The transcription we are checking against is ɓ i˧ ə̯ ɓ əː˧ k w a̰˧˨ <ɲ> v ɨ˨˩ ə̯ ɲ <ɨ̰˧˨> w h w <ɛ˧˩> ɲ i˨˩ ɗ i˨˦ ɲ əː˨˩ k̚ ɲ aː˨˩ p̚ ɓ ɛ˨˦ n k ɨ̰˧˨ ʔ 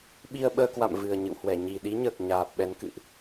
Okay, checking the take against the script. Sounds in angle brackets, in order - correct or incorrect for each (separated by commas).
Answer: incorrect, correct, correct